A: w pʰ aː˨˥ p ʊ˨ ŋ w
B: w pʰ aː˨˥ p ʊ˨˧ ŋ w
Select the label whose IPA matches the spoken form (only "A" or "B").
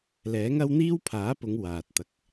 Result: B